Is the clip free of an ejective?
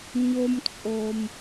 no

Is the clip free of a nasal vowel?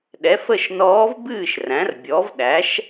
no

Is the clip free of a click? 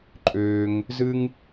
no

